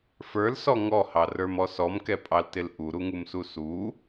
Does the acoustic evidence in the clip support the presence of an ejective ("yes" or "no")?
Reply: yes